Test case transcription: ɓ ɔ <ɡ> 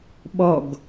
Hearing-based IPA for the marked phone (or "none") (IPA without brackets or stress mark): ɡ